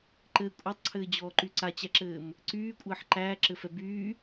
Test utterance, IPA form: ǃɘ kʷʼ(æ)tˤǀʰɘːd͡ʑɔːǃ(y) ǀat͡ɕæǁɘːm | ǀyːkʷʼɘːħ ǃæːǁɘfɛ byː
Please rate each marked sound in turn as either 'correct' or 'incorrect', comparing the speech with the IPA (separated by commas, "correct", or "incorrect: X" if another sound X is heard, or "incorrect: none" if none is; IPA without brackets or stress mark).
incorrect: a, correct